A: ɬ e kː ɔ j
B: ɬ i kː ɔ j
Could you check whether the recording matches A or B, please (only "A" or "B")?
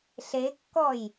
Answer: A